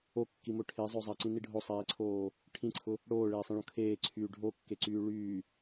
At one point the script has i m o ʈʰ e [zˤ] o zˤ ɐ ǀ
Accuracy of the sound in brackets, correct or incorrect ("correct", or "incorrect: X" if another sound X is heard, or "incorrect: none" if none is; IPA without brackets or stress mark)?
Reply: correct